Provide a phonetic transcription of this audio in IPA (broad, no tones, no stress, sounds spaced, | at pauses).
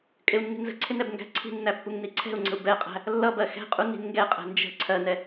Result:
kʼ ɪ u̯ nː i̤ n z ə̤ ǀʰ ɪ n ɛ b ŋ ɡ æ̤ ǀʰ i̤ nː æ pː u ŋ n i ǀʰ ɛ̤ u̯ ŋ͡ǀ ə̤ u̯ b ɛ qʼ æ̤ | lː ʌ b ɜ x ɛ̤ qʼ u n i̤ n ŋ ɡ ɛ qʼ ɛ̤ n d͡ʒ ə̤ ǀʰ ɜ n ɛ